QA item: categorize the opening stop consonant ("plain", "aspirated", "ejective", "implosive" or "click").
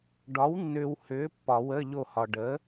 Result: plain